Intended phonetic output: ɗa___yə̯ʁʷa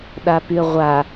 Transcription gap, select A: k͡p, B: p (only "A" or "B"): B